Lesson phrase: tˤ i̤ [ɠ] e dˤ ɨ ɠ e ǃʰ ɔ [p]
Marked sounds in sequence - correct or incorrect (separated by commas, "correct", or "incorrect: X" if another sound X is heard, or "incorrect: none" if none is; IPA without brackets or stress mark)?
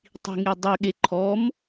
incorrect: ŋ, incorrect: m